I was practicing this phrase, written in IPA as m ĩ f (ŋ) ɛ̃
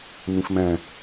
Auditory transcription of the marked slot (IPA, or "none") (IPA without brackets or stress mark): m